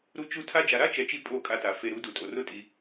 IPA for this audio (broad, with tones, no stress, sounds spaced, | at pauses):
ɾ u˧ t͡ʃ u˧ tʰ a˦ d͡ʒ a˧ ɾ a˦ t͡ʃ ɛ˨ t͡ʃ i˦ pʼ o˦˨ kʼ a˧ t a˨ f e˨ ɾ u˨˦ d u˨ tʼ o˨ r ʊ˦ tʼ i˧